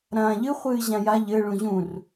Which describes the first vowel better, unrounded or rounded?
unrounded